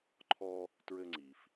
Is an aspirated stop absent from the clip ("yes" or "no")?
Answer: no